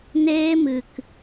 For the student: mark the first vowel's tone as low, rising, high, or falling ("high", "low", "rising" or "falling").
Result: high